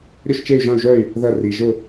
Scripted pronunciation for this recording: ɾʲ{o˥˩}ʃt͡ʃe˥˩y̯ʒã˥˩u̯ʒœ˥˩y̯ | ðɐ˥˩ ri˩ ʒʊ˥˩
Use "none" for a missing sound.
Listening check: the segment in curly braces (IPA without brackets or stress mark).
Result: o˥˩